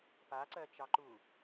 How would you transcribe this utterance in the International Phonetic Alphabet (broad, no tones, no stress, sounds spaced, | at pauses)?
p a ǀ ɜ t͡ʃ ɑ ǃ u